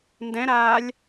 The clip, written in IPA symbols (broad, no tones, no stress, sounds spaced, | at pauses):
n d ɛ̃ ɾ aː lʲ